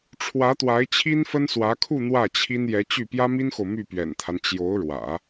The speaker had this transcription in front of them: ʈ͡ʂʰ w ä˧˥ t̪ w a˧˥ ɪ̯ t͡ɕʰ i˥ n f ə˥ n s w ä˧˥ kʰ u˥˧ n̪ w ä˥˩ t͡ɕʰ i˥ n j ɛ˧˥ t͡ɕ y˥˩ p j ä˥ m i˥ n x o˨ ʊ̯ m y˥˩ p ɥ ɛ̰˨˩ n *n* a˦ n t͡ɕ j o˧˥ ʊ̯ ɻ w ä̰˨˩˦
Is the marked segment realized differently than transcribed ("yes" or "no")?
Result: yes